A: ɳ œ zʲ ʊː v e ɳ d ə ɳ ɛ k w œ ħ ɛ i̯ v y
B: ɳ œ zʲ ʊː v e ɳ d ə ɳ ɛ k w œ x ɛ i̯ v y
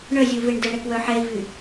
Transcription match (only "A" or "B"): A